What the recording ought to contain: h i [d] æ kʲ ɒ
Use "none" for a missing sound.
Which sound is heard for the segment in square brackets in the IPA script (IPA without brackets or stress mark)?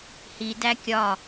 d